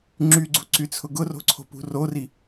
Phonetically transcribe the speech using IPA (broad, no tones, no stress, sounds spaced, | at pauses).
ŋ͡ǁ y ɡ͡ǀ u ǀ y t͡sʰ ʊ ɡ ʊ r o̤ ǀʰ o̤ p ṳ r o r i